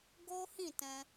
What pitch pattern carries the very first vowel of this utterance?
high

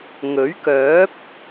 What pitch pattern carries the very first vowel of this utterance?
rising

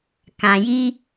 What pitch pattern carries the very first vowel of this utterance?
low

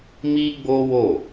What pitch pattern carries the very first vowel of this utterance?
high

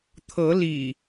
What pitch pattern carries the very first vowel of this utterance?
rising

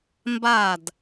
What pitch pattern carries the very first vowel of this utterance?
falling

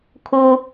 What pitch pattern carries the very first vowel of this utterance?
high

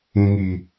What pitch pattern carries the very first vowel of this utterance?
low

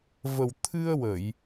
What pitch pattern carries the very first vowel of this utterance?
low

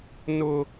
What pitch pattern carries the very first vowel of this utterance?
high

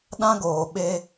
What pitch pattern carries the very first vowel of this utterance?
high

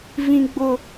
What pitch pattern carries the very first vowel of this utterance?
high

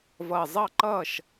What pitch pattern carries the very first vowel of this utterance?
low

